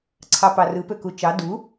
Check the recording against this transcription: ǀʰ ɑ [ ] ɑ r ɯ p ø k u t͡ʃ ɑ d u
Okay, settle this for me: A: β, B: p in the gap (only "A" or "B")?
B